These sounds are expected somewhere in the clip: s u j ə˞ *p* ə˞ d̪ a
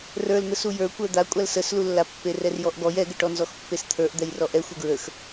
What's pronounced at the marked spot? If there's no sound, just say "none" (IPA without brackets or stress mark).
kʷ